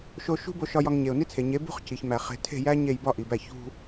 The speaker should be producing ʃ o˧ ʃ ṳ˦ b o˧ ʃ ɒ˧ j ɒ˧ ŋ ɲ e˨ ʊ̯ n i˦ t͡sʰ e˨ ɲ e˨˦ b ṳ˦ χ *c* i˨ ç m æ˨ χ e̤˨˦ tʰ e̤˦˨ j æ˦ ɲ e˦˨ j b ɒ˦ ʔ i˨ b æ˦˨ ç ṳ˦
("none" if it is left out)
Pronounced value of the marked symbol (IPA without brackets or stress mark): c